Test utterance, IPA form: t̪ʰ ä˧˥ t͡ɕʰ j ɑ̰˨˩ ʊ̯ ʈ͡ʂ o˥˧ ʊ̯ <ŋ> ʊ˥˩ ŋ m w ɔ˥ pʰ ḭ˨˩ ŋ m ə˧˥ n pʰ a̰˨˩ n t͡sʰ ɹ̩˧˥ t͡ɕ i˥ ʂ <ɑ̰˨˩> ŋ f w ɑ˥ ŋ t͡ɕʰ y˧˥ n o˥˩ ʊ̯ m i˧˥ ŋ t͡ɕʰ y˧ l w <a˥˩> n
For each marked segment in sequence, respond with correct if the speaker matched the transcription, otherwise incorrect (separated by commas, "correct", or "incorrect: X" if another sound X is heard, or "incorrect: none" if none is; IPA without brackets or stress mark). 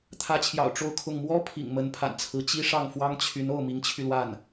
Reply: incorrect: kʰ, incorrect: ɑ˥˩, correct